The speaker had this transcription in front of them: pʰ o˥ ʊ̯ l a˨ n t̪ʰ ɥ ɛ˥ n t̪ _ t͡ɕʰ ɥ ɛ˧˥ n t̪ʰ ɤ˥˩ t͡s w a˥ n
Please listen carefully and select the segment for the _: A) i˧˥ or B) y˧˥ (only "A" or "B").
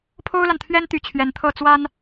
B